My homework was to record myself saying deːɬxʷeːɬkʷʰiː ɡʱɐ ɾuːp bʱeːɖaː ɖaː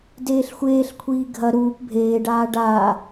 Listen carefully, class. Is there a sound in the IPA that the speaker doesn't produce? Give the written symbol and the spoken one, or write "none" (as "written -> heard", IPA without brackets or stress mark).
none